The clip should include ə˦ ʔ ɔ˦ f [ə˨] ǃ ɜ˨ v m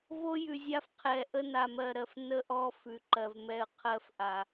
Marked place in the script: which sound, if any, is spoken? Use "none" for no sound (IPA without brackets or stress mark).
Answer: ʉ˨